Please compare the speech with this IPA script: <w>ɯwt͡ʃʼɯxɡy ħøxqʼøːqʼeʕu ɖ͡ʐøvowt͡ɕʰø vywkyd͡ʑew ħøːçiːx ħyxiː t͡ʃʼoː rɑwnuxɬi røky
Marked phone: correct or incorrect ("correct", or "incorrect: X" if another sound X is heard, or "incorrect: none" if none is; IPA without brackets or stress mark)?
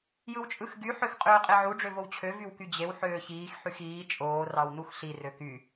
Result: incorrect: j